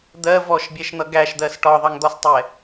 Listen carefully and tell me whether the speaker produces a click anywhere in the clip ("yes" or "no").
no